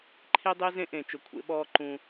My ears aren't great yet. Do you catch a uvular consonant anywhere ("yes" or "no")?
no